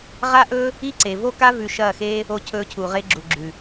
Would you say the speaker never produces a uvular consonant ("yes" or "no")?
no